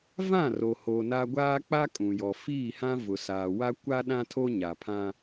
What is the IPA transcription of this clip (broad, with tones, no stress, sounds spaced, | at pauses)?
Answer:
v ã˦˨ r o˨ h o˨ n a˦ ɡʷ aː˦ k͡p a˦ kʼ ũ˨ j ɔ˨ f iː˦˨ h ã˦ v ʊ˨ s aː˨ w a˦ kʷ a˦ ɗ ã˦ tʰ o˦ ɲ a˨ pʰ ã˦